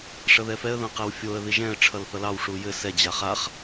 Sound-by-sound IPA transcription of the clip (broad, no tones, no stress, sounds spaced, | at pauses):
ʂ ʌ ð ɛ f ɛ ə̯ ð ɐ̃ q ɛ w fʲ o ə̯ ð i ʒ ɛ̃ ə̯ ʈ͡ʂʰ ʌ l θ ʌ l ɑ w ʂ u j ɘ s ɛ d͡ʑ a χ a χ